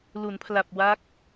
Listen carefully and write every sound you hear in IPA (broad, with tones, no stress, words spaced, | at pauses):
lu˩˦npʰla˨˩p̚wa˦˥k̚